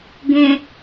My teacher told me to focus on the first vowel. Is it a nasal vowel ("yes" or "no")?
yes